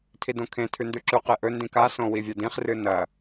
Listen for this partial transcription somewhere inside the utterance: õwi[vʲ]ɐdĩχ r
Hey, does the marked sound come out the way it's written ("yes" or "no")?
yes